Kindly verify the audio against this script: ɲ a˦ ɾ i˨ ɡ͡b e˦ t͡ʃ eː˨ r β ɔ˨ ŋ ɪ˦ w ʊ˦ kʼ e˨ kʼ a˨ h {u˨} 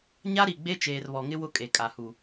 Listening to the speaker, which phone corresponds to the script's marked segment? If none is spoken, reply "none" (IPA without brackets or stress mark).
u˨